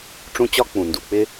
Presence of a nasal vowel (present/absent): present